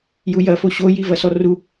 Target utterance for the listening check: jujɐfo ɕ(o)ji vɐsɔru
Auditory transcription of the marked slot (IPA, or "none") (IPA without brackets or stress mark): o